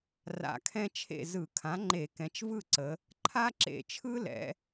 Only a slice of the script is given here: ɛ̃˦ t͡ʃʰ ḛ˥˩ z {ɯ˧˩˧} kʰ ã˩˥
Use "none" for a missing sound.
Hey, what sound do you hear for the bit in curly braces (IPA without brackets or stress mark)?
ɯ˧˩˧